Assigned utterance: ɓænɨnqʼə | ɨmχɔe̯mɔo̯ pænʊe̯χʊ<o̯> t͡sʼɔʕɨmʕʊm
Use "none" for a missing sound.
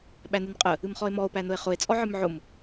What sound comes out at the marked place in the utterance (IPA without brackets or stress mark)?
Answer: e̯